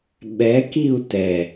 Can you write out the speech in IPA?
ɓ ɛ k i u̯ t ɛ

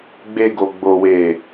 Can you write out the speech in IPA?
ɡ͡b e˧ ɡ o˨ ɡ͡b o˨ w e˨

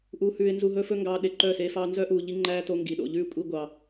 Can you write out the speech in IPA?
ʔ uː˧ h ʉː˧ ɪ̯ n z u˧ ɦ ɵ˦ f ɵ˦ ŋ ɡ ɑː˧ ɗ e˨ ǃ œ˦˨ s e˦ f ɑː˦ n z œ˦ ʔ uː˨ ʎ i˧ ŋ͡ǃ æː˦ t o˧ ŋ ɡ i˨ ɗ o̰˨ ʎ ʉː˦ kʷʼ i˧ ɡʷ ɑ˨

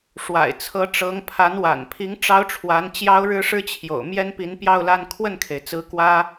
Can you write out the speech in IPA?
ʂ w a̰˨˩ ɪ̯ t͡sʰ ɤ˧˥ ʈ͡ʂ ɤ˧˥ ŋ pʰ a˧˥ n w a̰˨˩ n pʰ i˧˥ ŋ ʈ͡ʂ ɑ˥ ʊ̯ ʈ͡ʂʰ w a˧˥ n t͡ɕ j ɑ˥ ʊ̯ ɻ ɻ̩˥ ʂ ɻ̩˥ t͡ɕʰ j o̰˨˩ ʊ̯ m j ɛ˥ n p i˧˥ n p j ɑ˥˧ ʊ̯ l a˥˧ n kʰ w ə˥˩ n kʰ e˩ ɪ̯ t͡s ɹ̩˧˥ k w ä˥

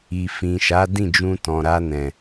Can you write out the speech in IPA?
i˨ f ĩ˨ ʃ a˨˦ d ĩ˦˨ d͡ʒ ũ˧ t ɔ̃˨ ɾ a˧ n ɛ̃˨

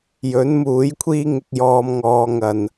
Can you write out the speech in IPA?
j ɵ˨˥ n m uː˨˥ j kʷʰ iː˥ ŋ ɪ˧ k̚ j ɔː˧ m ŋ ɔː˧ ŋ ɐ˨ n

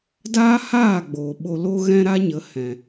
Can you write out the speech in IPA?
d aː˦ h aː˦˨ ɡ͡b oː˨ ɓ o˧ l o˦ ɣ ɛ̃˦ ɾ a˦ ɲ ə˨˦ h ɛ̃˨

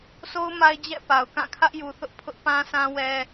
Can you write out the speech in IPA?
sʰ o˦ ʊ̯ m a˦ ɪ̯ d͡ʑ ɛ̰˦˨ p a˨ ʊ̯ k ã˦˨ kʰ ä˦ ʔ j u˨ θ ʊ˦ ʔ pʰ ʊ˦ ʔ p ã˦ sʰ ã˦ w ɛ˦

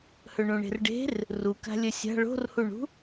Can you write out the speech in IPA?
h ɵ ɳ ũ ɳ e̤ r ɖ e̤ r | r u k a̤ lʲ ɵ sʲ a̤ ɭ o̤ r h u ɳ ṳ

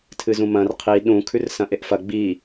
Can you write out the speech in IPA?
tʰ ɨ z ũ m ɐ̃ r qʰ i ɗ ũ kʰ ʉ r s ɐ̃ ʔ e ʔ f ɐ ɡ͡b i

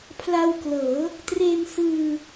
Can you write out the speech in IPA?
pʰ l a˧ w k l ɤː˩˦ | t r e˧ n s ɯː˧

